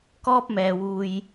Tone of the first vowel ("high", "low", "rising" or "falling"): high